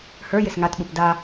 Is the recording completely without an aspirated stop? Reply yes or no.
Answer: yes